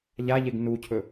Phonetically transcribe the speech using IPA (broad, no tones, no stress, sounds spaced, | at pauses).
ʎ a ʎ e ɡ n u cʰ ɵ